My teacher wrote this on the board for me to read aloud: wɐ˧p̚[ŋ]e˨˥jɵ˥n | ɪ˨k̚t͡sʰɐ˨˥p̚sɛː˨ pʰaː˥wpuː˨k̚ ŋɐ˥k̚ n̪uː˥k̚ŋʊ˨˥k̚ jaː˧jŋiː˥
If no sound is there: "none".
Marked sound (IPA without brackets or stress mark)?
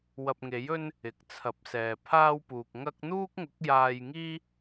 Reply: ŋ